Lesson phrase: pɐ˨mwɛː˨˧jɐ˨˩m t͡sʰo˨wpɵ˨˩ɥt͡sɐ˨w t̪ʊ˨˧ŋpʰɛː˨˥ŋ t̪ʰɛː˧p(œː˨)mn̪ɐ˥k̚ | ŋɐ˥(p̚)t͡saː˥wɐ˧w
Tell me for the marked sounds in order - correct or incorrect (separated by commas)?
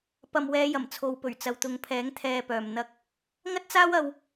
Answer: correct, incorrect